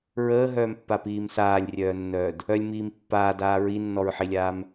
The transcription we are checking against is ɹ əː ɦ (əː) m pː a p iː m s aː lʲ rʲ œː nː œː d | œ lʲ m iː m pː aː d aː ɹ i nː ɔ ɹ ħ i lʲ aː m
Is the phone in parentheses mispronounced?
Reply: yes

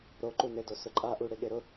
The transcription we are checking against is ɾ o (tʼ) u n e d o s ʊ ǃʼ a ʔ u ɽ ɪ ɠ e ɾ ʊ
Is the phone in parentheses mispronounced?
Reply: yes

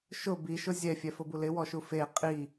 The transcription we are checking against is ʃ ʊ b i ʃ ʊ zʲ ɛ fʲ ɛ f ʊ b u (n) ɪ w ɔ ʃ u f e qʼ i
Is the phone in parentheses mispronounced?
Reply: yes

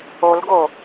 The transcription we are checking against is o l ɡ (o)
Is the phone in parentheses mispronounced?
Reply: no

